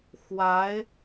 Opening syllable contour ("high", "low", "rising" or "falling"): rising